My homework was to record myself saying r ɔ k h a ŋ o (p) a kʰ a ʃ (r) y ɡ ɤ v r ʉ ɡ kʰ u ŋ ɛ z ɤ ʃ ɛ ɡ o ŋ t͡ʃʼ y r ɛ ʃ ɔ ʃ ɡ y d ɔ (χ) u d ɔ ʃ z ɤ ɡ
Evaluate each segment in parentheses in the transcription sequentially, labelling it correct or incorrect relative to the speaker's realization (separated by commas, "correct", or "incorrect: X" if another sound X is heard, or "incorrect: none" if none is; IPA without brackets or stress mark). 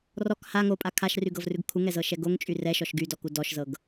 incorrect: pʼ, correct, incorrect: k